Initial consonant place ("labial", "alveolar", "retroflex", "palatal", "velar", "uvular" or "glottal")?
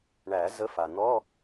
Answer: retroflex